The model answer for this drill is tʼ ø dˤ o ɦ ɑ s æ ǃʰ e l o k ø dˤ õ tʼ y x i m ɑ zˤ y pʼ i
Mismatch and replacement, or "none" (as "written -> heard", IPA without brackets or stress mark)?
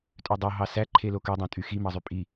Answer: none